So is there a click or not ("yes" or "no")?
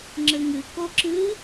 yes